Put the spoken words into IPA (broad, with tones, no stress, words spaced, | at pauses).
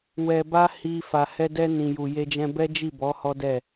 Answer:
wɛ˧ba˦hi˧ fa˨hɛ˧dɛ˧ nĩ˨ju˨ je˧d͡ʒɛ̃˧bɛ˦ d͡ʒi˦˨bɔ˨˦ hɔ˦dɛ˦˨